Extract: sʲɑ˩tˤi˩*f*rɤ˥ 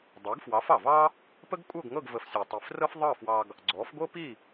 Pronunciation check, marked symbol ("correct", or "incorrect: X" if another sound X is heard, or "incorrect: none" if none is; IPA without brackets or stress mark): correct